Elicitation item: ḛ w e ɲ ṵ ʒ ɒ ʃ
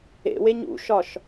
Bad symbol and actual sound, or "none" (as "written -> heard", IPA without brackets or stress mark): ʒ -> ʃ